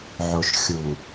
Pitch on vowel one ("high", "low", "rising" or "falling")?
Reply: low